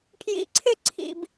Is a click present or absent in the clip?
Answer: present